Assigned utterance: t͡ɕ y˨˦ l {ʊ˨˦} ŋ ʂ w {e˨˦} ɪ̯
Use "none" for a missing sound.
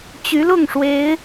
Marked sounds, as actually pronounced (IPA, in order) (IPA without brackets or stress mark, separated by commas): ʊ˥˨, e˨˦